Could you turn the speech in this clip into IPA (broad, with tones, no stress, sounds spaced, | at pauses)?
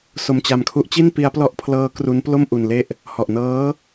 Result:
s o˧ m t͡ɕ a˧ m kʰ u˦˥ ʔ t͡ɕ i˥˩ n p i˦˥ a̯ p l ɔ˦˥ ʔ pʰ l ɤː˦˥ k r u˦˥ n p l o˥˩ m ʔ u˧ n l e˥˩ ʔ | h ɔ˨˩ ʔ n ɤː˦˥